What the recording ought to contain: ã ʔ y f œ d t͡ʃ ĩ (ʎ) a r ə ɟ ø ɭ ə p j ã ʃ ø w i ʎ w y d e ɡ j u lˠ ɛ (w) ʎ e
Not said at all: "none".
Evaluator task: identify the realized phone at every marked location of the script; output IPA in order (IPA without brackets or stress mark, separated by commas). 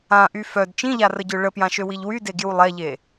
ʎ, none